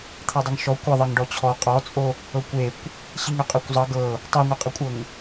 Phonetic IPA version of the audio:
t̪ʰ ɜ dˤ ə ŋ ʃ ɔ kʷ ə ðˤ ɜ ŋ ɖ ɔ t͡ɕʰ ɔ qʼ ɔ t͡sʼ o | ɤ kʷ e kʷ | ɕ i ŋ ø qʼ ɜ kʷ zˤ ʌ ɡ ɤ | tˤ o ŋʷ a qʼ ə kʷʼ ɤ ŋ

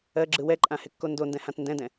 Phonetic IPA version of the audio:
ɜ ɡ͡ǁ ɯ w ɛ ǃʼ ã h ɪ kː o n d o n d ɛ̃ h ã t n d ɛ̃ d ɛ̃

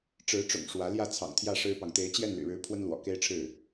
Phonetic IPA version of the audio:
ʈ͡ʂ ɻ̩˧˥ ʈ͡ʂ ʊ̰˨˩ ŋ ʂ w ä˧˥ l j ä˥˩ t͡sʰ ɑ̰˨˩ ŋ t̪ʰ j ä˥˩ ʂ ɻ̩˥ p ɑ˨ ŋ t̪ e˧˥ ɪ̯ t͡ɕ j ɛ˥˩ n l y̰˨˩ ɻ ɻ̩˧˥ pʰ w ə˥ n l w ɔ̰˨˩ k e˥ ɪ̯ ʈ͡ʂʰ ɻ̩˥˩

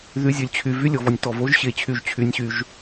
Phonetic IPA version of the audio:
ð y˨˦ zʲ ø˨ lʲ t͡ɕʰ y˨ v y˦ lʲ ɔ˨ v ɔ˨ nʲ t ɔ˨ v o˦ ʒ ɕ e˨ t͡ɕʰ y˨ ʒ t͡ɕʰ y˦ nʲ ɕ y˦ ʒ

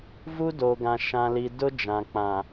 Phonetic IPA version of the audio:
v u˦ d o˨ ɡ ã˨ ʃ ã˨ l i˨ d ʊ˦ d͡ʒ ã˨ k͡p ã˨

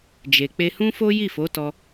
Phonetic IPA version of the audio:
d͡ʒ e˨ k͡p e˧ h ũ˦ f o˦ j i˦˨ f o˨˦ t ɔ˧

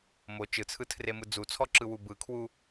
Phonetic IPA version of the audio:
m o t͡ʃ ɯ t͡sʰ ɯ tʰ r e m ɯ d͡z u t͡sʰ ɔ ǁ ɯ w u b ɯ kʰ w u

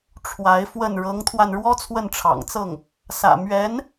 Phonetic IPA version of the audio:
ʈ͡ʂʰ w a˧˥ ɪ̯ f w ə˥˩ n ɻ ɤ˧˥ ŋ t̪ʰ w a˧ n ɻ w ɔ˥ t͡sʰ w ə˥˩ n ʈ͡ʂʰ ɑ̰˨˩ ŋ t͡s ɤ˥˩ ŋ | s ä̰˨˩ m ɥ ɛ˧˥ n

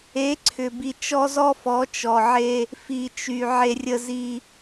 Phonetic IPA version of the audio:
e˨˦ ǀʰ ʏ˨ b i˨ t͡ʃ ɔ˦ z ɔ˦ f ɔ˨˦ t͡ʃ ɔ˨ ʕ e˧ | f i˨ t͡ʃ y˨ ʕ e˧ rʲ ə˧ z i˧

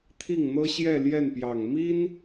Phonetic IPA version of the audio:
t̪ʰ i˥˩ ŋ n̪ ɤ˥ ɕ j ɛ˥˧ l j ɛ˥˩ n p j ɑ˨˩ ŋ m i˥ n

